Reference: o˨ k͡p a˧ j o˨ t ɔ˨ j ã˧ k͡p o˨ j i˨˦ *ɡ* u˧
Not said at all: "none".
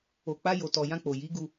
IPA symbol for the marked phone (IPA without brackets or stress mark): ɡ